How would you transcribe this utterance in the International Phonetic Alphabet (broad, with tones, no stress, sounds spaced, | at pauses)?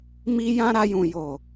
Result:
m i˦ j ã˦ ɾ a˧ j ũ˨ j o˨